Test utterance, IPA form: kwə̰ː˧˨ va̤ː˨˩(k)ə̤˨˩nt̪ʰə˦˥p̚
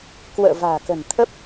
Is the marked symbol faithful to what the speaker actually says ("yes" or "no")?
yes